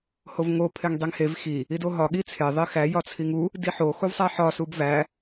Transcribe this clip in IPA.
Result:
hovŋo pʰeŋdˤiŋhev xi | idoɦɒ ɠit͡sʰe ðˤixæ jɒt͡sʰiŋu | diħo xuvsˤæħɒ subvæ

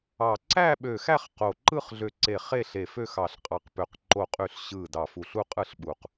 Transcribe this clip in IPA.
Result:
ɑ˧˩ ǀæ˥˧ɓø˧˩xæ˥˧χ qo˧˩ ǃɯ˥˧χɮø˧˩ǀe˧˩ χe˥˧ɬe˧˩ fø˥˧xɑ˧˩ɬqʼɑ˧˩qpø˧˩q ǃo˧˩qʼy˧˩ɬ ɕɯ˧˩ dɑ˧˩fu˧˩ɬ u˥˧qʼɯ˥˧ɬɓu˧˩q

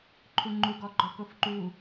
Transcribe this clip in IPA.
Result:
ǃʰuŋ͡ǃu ɡɔɡ͡ǃɔkofǃu

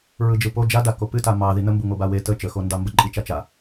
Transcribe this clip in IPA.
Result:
ɹɯd͡ʒɯpo d͡ʒadako pɨta mɑ ðin̪əmbu ŋobawe tə t͡ʃəxondɑ mbəǃʼit͡ʃat͡ʃa

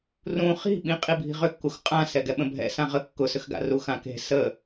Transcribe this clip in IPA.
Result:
rũ χi̤ɓĩ qʼibʱi̤ʁʏkːux qʼã sɛɡɛɓə̃bʱɛ̰ sãʁə kːʊsʏxɡa̰ ruxãke̤ sə

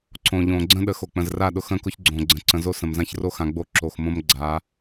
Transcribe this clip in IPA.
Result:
ǀõ˨ʎõ˨ ɡ͡ǀə̃˦ɗə˨ xo˨k͡pə̃˨zra˦˨ɗʊ˦˨x ə̃˦kʊ˦ç ɡ͡ǀõ˨ɡ͡ǀə̃˨ ǀə̃˨zo˦sə̃˨mzã˦ç ro˦xã˨ɡ͡bo˦˨ ǁo˨xmõ˦m ɡ͡ǀa˨˦

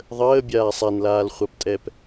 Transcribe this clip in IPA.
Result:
ðˤəːbʲaː sˤanlaːlχʷaptʼɛp

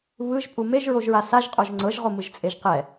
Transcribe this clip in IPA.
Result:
βɯʒpʼu meʒɹoʒɹa saʒqʼoʒ ŋ͡ǀɤʒʁomɯʒt͡sʼeʒ qɛ

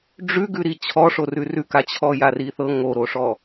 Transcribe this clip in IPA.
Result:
ɖ͡ʐʉɡʉɾi t͡ɕʰɔ ʂorʉrʉka t͡ɕʰɔjariθɤ ŋoɾoʂɔ

